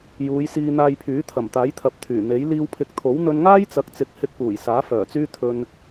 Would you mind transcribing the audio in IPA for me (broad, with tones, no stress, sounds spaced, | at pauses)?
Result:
j uː˨˧ j s iː˧ n̪ aː˧ j pʰ yː˨˥ t̪ʰ ɐ˨˩ m t̪ aː˨˥ j t̪ʰ ɐ˨˥ p̚ t̪ʰ yː˨˩ n̪ e˨˥ j l iː˧ w pʰ ɪ˨˥ k̚ t̪ʰ o˨˥ w n̪ ɵ˧ n ŋ aː˥ j t͡s ɐ˨˥ k̚ t͡s ɪ˨˥ k̚ h ɪ˧ k̚ p uː˨˩ j s aː˨˥ f œː˨˩ t͡s yː˥ t̪ʰ ɵ˧ n